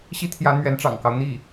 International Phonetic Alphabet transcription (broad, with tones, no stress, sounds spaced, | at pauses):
ɕ i˥ t̪ʰ j ä˧˥ n̪ ɥ ɛ˧˥ n ʈ͡ʂ ɑ̰˨˩ ŋ k ɑ˦ ʊ̯ n̪ i˥˩